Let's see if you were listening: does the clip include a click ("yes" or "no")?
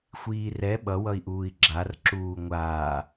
yes